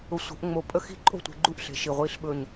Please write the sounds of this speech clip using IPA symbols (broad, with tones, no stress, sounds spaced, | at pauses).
ʊ˧˩ sʷ ə̤˨˩˦ ʔ ŋ͡m o˧˩ pʼ ə˥˧ x i̤˥˧ ǃʼ o̤˥˧ tʷ e̤˨˦ ɡ͡ǃ u˥˧ ʔ ɬ e̤˧˩ ʃ i˧˩ ʁʷ i˥˧ ɬ ɓ ɵ˥˧ ɲ